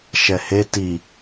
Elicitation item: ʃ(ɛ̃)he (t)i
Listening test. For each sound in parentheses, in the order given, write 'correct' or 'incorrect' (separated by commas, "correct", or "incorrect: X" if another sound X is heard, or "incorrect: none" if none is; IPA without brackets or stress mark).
incorrect: ɛ, correct